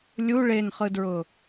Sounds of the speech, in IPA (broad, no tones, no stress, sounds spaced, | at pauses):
lʲ u ɭ e n χ ɯ d ɹ ʊ